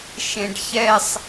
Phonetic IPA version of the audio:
ʃ ẽ ɖ ç ɛ sˤ

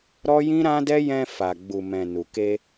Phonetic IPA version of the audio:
ɾ ɔ˦ j ĩ˦ ɾ ã˦ d ɛ˦ j ɛ̃˧ f a˨ ɡ͡b u˨ m ɛ̃˨ n u˨ k e˧

